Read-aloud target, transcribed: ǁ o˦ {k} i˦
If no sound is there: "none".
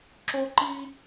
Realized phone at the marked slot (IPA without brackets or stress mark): ǃ